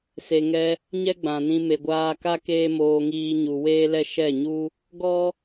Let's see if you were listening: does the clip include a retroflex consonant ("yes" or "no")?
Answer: no